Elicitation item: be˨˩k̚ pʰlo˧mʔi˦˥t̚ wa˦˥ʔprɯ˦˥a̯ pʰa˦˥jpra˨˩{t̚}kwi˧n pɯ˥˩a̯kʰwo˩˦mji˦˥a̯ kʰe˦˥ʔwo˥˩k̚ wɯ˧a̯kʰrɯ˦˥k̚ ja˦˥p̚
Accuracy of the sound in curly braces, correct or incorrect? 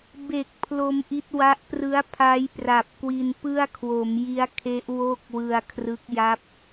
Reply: incorrect